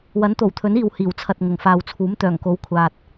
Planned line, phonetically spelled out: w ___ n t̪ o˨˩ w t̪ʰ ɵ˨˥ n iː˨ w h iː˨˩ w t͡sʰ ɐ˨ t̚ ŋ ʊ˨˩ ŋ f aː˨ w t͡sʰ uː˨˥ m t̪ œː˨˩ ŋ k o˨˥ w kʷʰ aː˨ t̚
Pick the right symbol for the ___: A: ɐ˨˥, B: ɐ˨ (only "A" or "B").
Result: A